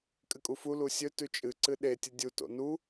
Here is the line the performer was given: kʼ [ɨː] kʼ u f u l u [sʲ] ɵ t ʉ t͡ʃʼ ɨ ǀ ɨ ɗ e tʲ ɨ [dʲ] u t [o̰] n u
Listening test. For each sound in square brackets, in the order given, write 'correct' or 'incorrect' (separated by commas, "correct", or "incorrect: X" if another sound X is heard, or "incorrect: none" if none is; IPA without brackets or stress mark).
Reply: incorrect: ɨ, correct, correct, correct